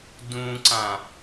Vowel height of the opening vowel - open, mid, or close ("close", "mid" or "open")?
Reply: close